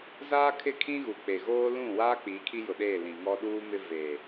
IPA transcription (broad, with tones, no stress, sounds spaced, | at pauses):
z aː˦ kʰ ɪ˦˨ kʰ ĩ˦ ɣ u˨ k͡p e˨ ɣ oː˦ l ũ˦˨ w aː˦ k͡p iː˨˦ kʰ i˦ j ʊ˨ ɗ eː˦˨ l ĩ˨ ŋ ɔ˦ ɗ uː˦ m ɪ˦ v e˨